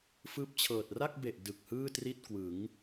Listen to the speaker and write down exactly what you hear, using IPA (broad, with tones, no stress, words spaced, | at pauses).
fɯː˥˩p̚t͡ɕʰɤː˨˩t̚ ra˥˩k̚ be˨˩ʔ dɯ˨˩k̚hɯː˥˩ tri˥˩t̚ kwɯ˩˦ŋ